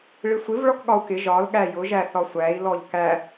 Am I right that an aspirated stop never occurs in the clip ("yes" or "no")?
yes